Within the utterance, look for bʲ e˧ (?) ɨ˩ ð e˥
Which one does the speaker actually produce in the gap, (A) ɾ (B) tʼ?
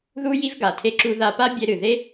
A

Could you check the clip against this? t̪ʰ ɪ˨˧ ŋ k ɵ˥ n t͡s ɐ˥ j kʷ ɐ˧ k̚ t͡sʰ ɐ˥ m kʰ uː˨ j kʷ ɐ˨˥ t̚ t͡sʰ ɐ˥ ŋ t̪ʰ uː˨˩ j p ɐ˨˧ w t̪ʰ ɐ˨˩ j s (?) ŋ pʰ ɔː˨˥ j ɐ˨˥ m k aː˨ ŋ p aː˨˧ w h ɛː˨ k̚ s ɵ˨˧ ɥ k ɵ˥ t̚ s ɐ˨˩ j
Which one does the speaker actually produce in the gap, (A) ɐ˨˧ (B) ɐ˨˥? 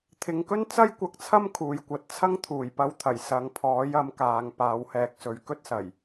A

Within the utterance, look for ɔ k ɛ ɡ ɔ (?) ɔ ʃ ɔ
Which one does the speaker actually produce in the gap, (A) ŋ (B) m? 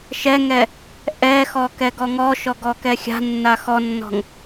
A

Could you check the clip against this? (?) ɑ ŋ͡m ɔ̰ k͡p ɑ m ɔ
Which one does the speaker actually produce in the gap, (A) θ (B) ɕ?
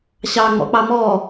B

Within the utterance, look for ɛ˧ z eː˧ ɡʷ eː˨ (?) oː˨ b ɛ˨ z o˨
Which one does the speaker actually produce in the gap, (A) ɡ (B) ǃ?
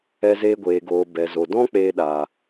A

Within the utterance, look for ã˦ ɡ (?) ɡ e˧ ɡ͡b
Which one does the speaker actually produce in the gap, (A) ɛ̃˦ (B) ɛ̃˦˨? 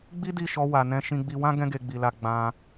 A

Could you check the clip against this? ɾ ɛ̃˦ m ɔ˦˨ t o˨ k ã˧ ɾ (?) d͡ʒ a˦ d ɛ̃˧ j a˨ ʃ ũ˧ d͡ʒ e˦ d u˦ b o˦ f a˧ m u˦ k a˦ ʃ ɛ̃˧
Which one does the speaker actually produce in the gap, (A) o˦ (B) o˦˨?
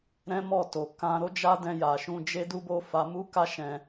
A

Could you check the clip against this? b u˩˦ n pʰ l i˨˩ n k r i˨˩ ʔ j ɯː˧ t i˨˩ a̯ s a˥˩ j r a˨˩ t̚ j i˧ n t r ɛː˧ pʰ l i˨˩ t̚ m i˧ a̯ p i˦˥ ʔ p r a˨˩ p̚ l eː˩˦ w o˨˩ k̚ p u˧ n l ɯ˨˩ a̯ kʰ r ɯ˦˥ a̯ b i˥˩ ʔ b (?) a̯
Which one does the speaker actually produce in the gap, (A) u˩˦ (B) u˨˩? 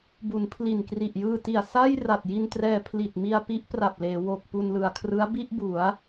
A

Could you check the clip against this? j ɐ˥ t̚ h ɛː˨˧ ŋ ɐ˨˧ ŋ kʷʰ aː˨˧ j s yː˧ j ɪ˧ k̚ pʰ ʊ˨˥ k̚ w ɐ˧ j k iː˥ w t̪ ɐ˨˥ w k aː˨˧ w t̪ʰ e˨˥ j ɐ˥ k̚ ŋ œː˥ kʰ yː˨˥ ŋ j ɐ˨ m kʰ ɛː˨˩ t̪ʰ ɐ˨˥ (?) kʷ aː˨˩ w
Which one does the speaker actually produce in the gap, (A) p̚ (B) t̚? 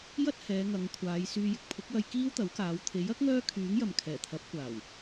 A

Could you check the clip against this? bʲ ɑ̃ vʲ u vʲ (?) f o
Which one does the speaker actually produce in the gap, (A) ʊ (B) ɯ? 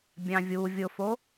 A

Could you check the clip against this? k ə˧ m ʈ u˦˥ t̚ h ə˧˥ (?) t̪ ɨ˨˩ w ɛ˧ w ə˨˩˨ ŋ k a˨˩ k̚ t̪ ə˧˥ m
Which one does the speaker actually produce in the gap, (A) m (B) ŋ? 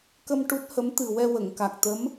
A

